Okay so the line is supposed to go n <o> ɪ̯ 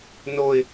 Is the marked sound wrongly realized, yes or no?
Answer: no